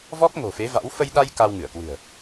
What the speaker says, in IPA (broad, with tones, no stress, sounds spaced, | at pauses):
v ɔ˦˥ k̚ ŋ o̤˨˩ f e˨˦ v a̰˧˥ w f ə˧ j ɗ a˧ j k a˧ w ŋ ɨ˧˩ ə̯ k w ɨ̤˨˩ ə̯